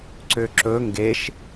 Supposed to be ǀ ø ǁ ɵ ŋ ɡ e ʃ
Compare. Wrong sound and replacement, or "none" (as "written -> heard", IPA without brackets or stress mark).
none